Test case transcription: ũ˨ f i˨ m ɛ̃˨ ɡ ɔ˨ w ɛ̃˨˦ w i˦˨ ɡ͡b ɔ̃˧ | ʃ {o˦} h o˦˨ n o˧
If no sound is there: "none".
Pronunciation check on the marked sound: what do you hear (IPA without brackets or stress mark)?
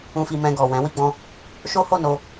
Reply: o˦